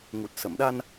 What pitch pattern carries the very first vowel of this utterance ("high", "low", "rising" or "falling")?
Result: low